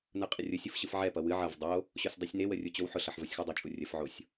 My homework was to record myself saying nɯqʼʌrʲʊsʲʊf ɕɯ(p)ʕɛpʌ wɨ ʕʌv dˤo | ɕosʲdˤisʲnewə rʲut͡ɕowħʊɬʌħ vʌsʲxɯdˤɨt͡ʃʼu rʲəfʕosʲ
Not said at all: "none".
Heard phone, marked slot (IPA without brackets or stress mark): f